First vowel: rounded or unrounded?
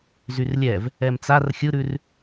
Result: rounded